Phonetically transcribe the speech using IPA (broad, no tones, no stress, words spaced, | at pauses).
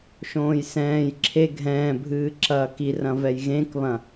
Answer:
ʃõːjsɛ̃ːj ǁʰe ɡʱɛ̃ːbʱɨː ǁɐːki rɐ̃vɛjɣẽkβɐ̃